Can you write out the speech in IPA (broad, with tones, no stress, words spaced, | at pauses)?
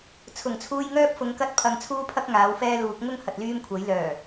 t͡sʰʊ˨˩ŋt͡sʰuː˧jŋœː˥p̚fʊ˨˧ŋ kɐ˥t̚pʰɐ˧ŋ t͡sʰuː˥pʰɐ˥k̚ ŋaː˨˥wfɛː˥luː˨˥k̚ ŋʊ˥ŋ hɐ˨t̚ lyː˥mkʷʰɐ˨˥j lœː˨˩